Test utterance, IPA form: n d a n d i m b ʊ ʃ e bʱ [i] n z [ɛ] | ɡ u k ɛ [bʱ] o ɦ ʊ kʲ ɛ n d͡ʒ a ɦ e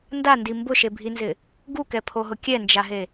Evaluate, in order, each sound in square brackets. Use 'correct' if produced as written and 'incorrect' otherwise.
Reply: correct, incorrect: ɪ, incorrect: pʰ

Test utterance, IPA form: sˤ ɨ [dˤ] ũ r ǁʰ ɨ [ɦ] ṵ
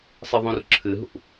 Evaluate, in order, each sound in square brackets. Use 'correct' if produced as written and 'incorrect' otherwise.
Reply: incorrect: ðˤ, correct

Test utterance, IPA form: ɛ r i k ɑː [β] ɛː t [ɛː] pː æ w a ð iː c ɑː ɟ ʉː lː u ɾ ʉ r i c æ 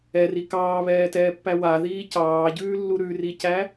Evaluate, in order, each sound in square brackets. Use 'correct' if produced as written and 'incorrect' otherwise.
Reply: correct, correct

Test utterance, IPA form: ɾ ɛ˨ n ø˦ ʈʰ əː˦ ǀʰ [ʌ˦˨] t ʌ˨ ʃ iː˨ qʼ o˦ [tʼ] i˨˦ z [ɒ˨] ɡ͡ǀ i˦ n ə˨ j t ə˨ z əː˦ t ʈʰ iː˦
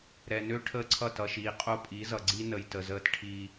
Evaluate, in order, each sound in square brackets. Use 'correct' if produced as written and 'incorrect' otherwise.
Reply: correct, incorrect: pʼ, incorrect: ʌ˨

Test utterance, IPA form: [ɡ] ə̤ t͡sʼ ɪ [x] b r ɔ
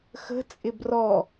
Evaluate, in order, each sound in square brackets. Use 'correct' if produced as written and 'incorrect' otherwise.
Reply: incorrect: x, incorrect: none

